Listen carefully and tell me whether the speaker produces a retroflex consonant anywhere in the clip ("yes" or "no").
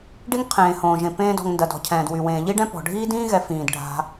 yes